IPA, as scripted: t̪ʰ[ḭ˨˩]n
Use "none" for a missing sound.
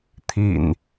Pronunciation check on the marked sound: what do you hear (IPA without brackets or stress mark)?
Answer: ḭ˨˩